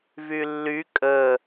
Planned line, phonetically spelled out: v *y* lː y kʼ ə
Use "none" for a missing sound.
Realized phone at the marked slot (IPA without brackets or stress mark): y